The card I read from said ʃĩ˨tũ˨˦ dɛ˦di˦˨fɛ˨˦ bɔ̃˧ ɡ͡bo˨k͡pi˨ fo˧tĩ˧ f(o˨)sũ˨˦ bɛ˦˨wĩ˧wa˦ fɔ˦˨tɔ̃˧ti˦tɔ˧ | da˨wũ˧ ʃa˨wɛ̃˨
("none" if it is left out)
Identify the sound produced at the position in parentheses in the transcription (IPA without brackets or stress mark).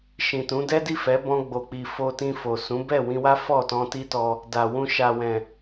o˨